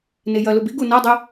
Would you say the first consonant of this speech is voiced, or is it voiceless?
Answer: voiced